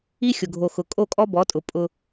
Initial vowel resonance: oral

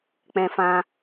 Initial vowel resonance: nasal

